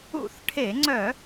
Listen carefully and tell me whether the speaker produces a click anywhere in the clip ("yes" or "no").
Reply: yes